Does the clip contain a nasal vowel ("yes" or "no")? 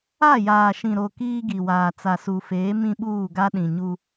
yes